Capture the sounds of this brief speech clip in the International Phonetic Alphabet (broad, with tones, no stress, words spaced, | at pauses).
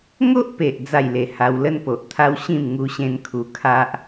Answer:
ŋo˦ʔpe˨ʔ d͡za˥˧jle˧ ha˧wlə˦npo˨ʔt̪ʰa˦w ɕĩ˥˧m ŋu˦ɕẽ˦nkʰu˧kʰa˦ʔ